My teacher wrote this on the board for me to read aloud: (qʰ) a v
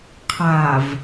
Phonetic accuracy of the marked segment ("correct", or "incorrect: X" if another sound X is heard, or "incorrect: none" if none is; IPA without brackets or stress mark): correct